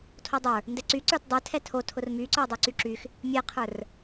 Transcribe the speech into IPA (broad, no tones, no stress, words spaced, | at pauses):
tʰodˤə˞ | ndɛǀy ǀə˞tdˤə˞ tʰɛtʰo tʰʊrmyǀə˞ dˤoǀyǁyx | mʲɛqʰə˞r